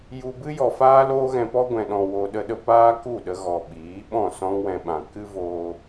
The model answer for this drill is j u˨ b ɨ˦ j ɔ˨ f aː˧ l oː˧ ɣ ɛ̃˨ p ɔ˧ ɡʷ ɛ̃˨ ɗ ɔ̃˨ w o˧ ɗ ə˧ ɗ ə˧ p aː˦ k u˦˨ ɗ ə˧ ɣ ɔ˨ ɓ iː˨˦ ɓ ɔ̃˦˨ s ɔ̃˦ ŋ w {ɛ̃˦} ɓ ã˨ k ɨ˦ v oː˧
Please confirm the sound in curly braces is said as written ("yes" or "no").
no